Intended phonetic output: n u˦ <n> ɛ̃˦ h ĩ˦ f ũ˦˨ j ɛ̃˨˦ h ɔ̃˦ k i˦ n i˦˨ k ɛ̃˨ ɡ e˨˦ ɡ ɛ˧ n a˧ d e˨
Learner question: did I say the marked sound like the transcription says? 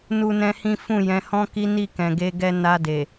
yes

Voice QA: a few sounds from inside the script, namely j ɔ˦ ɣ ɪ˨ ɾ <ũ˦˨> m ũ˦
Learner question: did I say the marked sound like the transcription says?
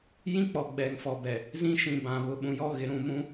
yes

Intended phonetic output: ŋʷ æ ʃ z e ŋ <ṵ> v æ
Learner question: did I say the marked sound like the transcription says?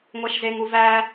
no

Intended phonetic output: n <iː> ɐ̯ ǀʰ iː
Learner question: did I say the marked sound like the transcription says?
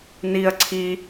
yes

